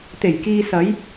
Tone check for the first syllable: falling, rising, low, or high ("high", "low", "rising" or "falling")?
low